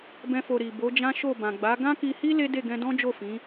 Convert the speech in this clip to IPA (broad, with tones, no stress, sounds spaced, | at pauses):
b ɛ̃˦ f o˧ ɾ i˨ b o˨˦ d͡ʒ ã˦ ʃ o˦˨ b ã˨ ɡ͡b a˨˦ ɡ ã˦ k i˧ h i˦ l e˦ d e˦˨ ɡ ɛ̃˧ d ɔ̃˦ d͡ʒ o˦˨ f ĩ˨˦